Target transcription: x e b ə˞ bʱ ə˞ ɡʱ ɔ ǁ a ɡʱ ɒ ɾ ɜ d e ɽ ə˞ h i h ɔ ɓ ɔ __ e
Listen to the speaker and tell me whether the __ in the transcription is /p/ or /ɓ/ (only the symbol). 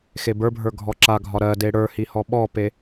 p